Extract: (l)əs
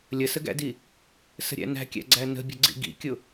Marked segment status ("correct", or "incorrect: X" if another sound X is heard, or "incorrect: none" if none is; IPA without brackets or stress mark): incorrect: lʲ